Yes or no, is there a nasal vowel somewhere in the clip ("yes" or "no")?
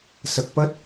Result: no